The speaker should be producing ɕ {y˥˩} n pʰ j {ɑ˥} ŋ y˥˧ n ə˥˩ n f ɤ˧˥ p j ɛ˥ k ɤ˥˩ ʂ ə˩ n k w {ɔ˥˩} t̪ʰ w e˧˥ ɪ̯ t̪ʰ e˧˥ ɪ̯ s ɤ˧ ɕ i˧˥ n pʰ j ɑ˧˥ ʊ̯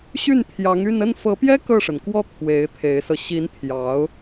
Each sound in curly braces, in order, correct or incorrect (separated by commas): correct, incorrect, correct